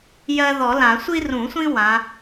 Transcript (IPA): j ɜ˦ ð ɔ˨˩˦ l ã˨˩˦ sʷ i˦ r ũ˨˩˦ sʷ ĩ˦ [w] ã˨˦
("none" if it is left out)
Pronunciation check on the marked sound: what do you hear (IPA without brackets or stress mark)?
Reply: w